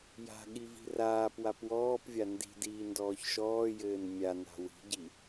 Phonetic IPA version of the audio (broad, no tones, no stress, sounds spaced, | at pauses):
j a̤ ɠ i v i̤ r aː p w a p w ɔː p vʲ a n d i̤ d iː n d ɔː ç ʃ ɔː j ɘː n mʲ a n a̤ w i̤ ɟ i